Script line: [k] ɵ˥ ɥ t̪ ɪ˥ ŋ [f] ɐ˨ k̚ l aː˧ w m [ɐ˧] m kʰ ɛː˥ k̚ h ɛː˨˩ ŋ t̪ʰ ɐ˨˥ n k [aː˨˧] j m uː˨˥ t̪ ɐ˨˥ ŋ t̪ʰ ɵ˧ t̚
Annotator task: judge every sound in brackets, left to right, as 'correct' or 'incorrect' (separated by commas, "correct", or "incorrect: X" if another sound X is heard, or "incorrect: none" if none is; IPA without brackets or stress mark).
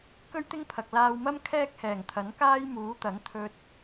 correct, incorrect: pʰ, incorrect: ɐ˥, incorrect: aː˥